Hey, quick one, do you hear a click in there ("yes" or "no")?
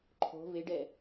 yes